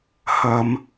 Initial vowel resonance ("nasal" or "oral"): oral